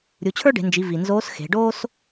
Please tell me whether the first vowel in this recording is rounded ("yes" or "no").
yes